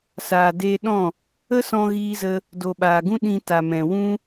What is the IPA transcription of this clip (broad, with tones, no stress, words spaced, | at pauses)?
saː˨deː˧ɗɔ̃˦˨ | ə˦sɔ̃˧ɣiː˧zə˧ | do˨ɓaː˨ɡũ˦ ɗĩ˧ta˨ mɛ̃˨wũ˦